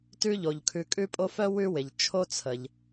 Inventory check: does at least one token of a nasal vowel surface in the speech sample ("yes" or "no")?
no